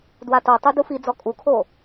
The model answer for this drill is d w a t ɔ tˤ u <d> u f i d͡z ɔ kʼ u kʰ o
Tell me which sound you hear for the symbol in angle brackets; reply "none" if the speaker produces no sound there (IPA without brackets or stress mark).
d